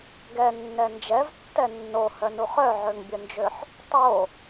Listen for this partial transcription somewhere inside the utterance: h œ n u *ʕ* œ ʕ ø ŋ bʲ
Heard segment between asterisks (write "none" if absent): χ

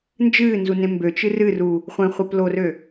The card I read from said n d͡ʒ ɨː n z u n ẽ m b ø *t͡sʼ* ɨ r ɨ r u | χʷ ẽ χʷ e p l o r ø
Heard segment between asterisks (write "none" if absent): t͡ʃ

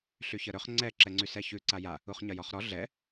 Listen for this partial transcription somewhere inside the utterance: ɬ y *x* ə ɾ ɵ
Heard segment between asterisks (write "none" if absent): ç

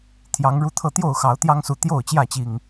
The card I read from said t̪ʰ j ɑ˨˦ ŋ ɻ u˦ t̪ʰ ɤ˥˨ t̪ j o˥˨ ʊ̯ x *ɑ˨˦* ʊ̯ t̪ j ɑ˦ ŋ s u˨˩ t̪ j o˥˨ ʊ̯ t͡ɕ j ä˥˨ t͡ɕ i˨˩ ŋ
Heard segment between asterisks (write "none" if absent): ɑ˨˦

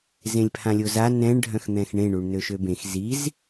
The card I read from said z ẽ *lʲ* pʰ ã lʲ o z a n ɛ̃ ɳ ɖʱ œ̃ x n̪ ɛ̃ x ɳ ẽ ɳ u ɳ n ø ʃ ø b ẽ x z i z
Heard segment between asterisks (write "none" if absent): lʲ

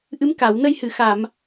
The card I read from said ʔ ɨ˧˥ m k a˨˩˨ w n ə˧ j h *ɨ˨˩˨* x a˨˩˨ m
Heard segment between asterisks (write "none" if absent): ɨ˨˩˨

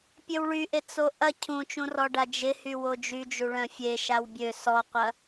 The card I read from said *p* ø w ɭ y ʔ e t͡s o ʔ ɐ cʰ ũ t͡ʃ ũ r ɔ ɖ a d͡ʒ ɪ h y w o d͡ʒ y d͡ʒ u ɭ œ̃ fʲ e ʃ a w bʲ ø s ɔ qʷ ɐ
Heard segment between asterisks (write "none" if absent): pʲ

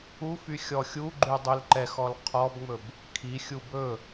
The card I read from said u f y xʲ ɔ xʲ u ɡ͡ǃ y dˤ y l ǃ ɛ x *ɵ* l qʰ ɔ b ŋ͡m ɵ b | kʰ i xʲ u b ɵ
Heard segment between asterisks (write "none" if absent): ɔ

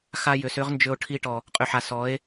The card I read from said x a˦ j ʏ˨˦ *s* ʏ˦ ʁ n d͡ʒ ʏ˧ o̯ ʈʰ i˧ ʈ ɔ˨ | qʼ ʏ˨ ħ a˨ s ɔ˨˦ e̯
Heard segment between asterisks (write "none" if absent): s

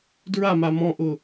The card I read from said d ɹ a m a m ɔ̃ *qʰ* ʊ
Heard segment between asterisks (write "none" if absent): ʔ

